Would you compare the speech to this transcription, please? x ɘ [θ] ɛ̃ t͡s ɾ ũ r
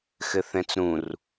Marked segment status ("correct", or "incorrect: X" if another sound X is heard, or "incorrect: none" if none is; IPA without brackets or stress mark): correct